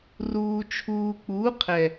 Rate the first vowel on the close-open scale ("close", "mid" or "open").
close